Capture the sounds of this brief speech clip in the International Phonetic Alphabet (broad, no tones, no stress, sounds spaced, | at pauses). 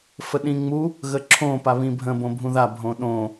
f ə ɗ ĩ ŋ͡m u | ɣ ə ǁʰ õ p a β ĩ bʱ ə̃ b õ bʱ ũ ð a bʱ õ ɗ õ